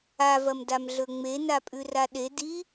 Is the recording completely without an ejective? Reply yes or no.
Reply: no